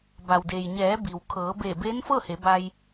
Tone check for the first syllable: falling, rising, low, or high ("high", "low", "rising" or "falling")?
low